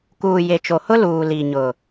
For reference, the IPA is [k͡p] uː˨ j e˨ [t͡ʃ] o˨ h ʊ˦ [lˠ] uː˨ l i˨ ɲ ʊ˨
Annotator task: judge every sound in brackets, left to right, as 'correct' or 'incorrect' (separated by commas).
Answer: incorrect, correct, incorrect